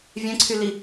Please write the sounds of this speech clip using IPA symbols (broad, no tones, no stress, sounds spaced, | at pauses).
vʲ ɛ̃ ǀʰ y l i